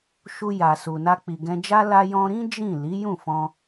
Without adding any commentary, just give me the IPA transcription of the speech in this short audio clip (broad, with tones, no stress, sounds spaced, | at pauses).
ʃ u˧ j a˨ s u˨ n a˧ k͡p i˨ ɡ ɛ̃˧ d͡ʒ a˦ l a˧ j ɔ̃˧ ɾ ĩ˦ d͡ʒ ĩ˦˨ l i˨˦ j ũ˦˨ f ɔ̃˧